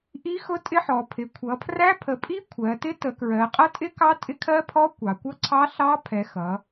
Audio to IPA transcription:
ʔ i˦˥ x ʊ˦˥ tʼ ɪ˦˥ ħ ɔ˩˧ pʰ ɪ˩˧ kʷʰ ʌ˩˧ pʰ r æ˦˥ pʰ ə˩˧ pʼ i˦˥ kʷʰ ɜ˩˧ t ɪ˦˥ t ə˩˧ k ɹ ɜ˩˧ qʼ ʌ˦˥ tʼ ɪ˦˥ k ɑ˦˥ tʼ ɪ˦˥ kʰ ɜ˦˥ pʰ ɔ˦˥ kʷ ɑ˩˧ kʷ ʌ˦˥ ǀʰ ɑ˦˥ ɬ ɑ˦˥ pʰ ɛ˩˧ x ʌ˩˧

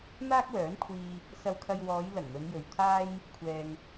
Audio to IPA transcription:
n̪ aː˥ k̚ w œː˨˥ n kʷʰ iː˧ | s ɐ˧ w kʰ ɐ˧ j w ɔː˨˧ j l ɐ˨˩ ŋ n̪ ɵ˨˧ n j ɵ˨ ɥ t̪ʰ aː˥ j | kʷʰ ɛː˧ ŋ

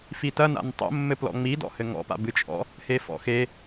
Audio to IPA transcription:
f i t ɐ n a̰ n tˤ o̰ mː ɘ p l ɔ̰ ŋ͡m i d ɔ̰ h ɘ ŋ ɔ̰ p a̰ b ɨ t͡ʃʼ ɔ̰ | h e f ɔ̰ x e

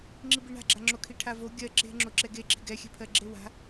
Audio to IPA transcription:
ŋ͡ǁ i b i ɳ a̤ ɡ͡ǁ a ŋ͡ǁ o kʰ i ʈʰ a v o ɡʲ ɜ ǁ e̤ ŋ͡ǁ o ǁ ɛ ɡ e ǁ i̤ ɡ ɛ xʲ ɛ̤ pʰ ɜ ɡ͡ǁ e w a̤

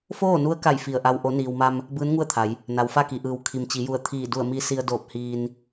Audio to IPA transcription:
f oː˥˨ n u˧˥ ə̯ k a˧˩ j f i˧˩ ə̯ ʔ a˧ w ʔ o˩˧ n iː˩ w m a˧ m | b ɯː˧˥ n ŋ u˥˨ ə̯ t̪ʰ a˩˧ j | n a˩ w f a˥˨ k i˩ ʔ ɯː˩˧ w kʰ i˩ m t͡ɕ i˩˧ j u˧˩ ə̯ t̪ʰ iː˧˩ d u˧˩ ə̯ m i˧ s i˧ ə̯ d oː˧˩ p̚ h iː˧ n

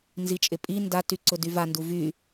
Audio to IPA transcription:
n z i t͡ʃʼ ɪ pʼ i n d a t y ǀ ʊ d y v a n d u v y

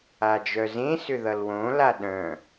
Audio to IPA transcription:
a d͡ʒ œ z ẽ s ʏ ð ʌ l w õ l a ɗ œ̃

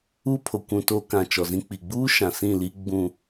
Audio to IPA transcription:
u˦ pʰ o˨ kʷ ũ˨ t oː˦ k ã˨ t͡ʃ ɔ˨ z ĩ˦ k͡p i˨ ɡ͡b uː˦ ʃ ã˨ s ĩ˦˨ l i˦ ɡ͡b ũ˦˨

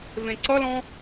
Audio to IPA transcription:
v ẽ ǀ ʌ l ɔ̃

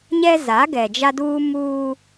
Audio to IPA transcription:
ɲ ɛ˦ z a˨˦ ɡ ɛ˨ d͡ʒ a˦ d uː˦ m uː˦

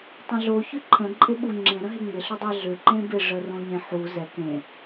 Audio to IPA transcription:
tˤ ə̃ ɮ o ç ʏ ǃʰ ə̃ ǃʼ ɪ ɓ u ŋ͡ǁ ẽ ɾ ə̃ ɦ e ŋ͡m ɪ ɬ ʏ dˤ a ɮ ʏ ǃ ẽ b ɪ ʐ ə r õ ɲ ẽ ħ u z ɛ k ẽ

